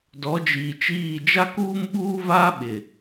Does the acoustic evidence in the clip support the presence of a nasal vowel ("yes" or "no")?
no